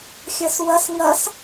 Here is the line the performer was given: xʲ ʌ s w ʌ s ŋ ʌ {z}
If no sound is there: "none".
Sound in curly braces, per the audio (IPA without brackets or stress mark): s